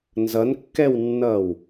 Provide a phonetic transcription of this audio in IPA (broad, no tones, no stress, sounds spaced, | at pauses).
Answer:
n z ʌ n kː ɛ w nː ʌː w